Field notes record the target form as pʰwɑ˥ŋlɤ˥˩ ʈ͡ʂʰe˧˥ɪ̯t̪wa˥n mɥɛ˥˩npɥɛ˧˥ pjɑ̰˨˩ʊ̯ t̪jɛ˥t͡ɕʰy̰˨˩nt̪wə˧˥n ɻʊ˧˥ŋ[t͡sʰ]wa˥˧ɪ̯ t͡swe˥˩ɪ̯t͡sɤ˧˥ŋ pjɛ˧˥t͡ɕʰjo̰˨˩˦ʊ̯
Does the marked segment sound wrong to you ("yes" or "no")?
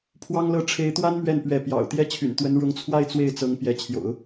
no